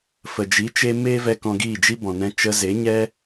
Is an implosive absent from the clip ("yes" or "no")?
yes